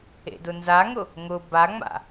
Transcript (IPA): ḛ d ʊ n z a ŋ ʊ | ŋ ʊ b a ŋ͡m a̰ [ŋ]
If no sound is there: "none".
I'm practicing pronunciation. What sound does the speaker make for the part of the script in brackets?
none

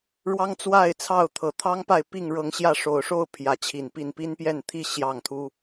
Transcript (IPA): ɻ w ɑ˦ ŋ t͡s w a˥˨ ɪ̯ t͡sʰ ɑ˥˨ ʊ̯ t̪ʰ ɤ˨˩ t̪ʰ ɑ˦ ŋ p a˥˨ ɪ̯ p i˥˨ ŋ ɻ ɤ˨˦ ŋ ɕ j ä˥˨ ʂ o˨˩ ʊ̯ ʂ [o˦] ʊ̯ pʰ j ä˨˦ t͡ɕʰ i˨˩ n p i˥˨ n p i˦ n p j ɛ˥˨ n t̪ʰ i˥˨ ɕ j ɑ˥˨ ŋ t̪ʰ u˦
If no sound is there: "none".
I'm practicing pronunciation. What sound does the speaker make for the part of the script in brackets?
o˥˨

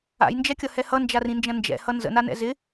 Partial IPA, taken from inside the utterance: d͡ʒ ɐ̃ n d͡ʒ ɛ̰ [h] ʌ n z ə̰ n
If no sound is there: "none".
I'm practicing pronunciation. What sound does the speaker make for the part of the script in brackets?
h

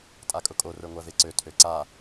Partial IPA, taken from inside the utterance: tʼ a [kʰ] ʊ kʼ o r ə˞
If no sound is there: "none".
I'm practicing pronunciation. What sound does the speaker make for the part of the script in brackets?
kʼ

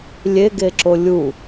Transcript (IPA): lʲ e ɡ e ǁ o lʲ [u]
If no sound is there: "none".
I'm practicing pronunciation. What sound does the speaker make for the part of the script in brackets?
u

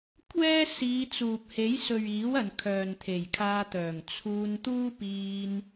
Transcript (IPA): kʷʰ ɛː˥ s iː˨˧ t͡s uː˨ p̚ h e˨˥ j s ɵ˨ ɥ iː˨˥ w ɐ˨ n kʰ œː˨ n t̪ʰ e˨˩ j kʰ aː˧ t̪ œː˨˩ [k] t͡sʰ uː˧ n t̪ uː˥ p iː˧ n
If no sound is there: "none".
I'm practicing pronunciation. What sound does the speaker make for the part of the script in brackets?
ŋ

